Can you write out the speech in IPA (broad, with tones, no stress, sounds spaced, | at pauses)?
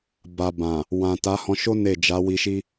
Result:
b a˨ b ã˨ | w ã˨ t a˨˦ h ɔ̃˧ ʃ o˦ n e˦˨ d͡ʒ a˨˦ w i˧ ʃ i˦